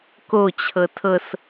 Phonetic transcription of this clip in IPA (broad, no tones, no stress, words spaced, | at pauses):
kot͡ɕʰɤ tʰɤs